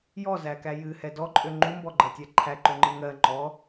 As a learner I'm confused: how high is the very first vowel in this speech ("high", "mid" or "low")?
mid